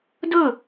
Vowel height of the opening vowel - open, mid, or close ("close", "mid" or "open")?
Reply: mid